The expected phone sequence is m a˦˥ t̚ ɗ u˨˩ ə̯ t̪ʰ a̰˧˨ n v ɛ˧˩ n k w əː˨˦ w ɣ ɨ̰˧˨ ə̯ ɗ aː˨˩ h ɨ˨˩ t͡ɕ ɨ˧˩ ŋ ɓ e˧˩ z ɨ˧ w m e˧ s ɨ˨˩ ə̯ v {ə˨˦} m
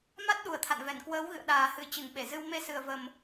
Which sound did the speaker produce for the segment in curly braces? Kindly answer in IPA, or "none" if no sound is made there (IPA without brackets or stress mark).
ə˨˩